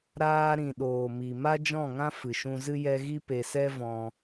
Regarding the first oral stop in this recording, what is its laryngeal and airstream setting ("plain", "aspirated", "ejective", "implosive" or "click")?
implosive